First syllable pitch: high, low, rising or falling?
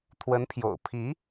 rising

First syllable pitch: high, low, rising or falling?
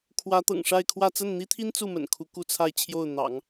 rising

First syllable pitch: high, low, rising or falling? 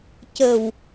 low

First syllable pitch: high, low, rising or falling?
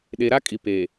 low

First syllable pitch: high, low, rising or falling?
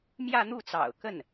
falling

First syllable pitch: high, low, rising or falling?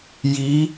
rising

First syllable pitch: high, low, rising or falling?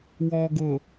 low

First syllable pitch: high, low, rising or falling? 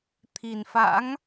low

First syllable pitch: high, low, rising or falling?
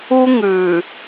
high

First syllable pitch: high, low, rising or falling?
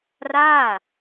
falling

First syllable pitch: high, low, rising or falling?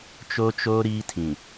high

